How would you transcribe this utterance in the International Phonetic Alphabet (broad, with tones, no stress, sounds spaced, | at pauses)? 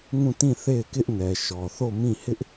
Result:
ŋ ũ˦˨ t ĩ˦˨ θ e˦˨ ɪ̯ k ɪ˦ ʔ n ɛ˨ ʃ ɔ˨ θ o˦˨ m ĩ˦˨ h ɪ˦ ʔ